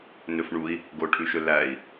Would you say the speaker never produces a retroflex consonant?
no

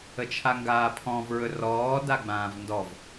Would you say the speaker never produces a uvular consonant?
yes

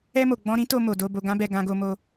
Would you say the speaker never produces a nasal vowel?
no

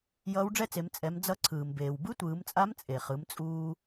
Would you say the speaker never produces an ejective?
no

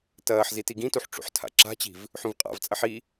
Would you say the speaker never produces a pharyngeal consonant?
no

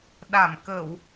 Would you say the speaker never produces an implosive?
no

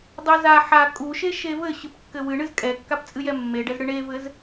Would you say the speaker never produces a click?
yes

